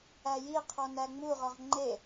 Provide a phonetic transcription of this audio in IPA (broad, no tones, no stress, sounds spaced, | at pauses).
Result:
æ j i qʰ ɔ n æ ŋ͡m u ʁ ɔ ʁ ŋ͡ǃ e